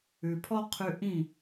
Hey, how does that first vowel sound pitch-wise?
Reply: low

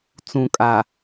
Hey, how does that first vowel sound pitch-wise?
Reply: low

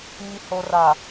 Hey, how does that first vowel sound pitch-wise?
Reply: low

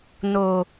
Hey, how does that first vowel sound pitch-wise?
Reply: low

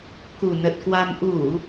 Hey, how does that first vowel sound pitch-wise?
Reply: low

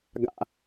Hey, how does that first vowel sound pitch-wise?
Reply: low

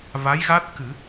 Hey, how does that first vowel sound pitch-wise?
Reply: rising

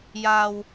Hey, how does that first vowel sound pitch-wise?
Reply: low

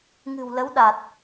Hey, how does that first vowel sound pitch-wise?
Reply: low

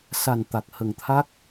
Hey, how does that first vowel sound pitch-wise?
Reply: low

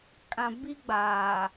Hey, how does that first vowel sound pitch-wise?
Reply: low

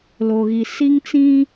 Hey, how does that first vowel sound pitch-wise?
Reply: low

